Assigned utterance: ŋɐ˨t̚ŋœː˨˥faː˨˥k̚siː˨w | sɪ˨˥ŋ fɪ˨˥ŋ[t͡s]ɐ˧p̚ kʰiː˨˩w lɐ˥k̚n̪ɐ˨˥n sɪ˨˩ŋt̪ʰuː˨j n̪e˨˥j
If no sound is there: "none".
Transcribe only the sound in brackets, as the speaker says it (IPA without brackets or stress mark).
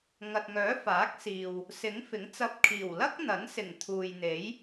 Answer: t͡s